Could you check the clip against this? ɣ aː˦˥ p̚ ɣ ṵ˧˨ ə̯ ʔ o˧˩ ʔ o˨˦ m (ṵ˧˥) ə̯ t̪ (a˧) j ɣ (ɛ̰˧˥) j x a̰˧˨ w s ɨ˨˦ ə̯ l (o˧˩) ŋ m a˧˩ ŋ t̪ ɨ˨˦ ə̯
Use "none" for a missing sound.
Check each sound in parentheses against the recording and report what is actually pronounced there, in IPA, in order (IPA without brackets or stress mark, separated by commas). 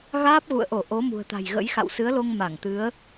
ṳ˨˩, a̤˨˩, ə̰˧˥, o˧